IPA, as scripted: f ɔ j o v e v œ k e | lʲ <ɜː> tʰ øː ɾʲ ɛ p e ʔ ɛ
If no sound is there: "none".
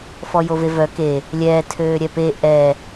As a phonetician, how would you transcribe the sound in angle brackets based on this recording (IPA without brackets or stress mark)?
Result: ɛː